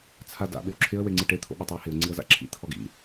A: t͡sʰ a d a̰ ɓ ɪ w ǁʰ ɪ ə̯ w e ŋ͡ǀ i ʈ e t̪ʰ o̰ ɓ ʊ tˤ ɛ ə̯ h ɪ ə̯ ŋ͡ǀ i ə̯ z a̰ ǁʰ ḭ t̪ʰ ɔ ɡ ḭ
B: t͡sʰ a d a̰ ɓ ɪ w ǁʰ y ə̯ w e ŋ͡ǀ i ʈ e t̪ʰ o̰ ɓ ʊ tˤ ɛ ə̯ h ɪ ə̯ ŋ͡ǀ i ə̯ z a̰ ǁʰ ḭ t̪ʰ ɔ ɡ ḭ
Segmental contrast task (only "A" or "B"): A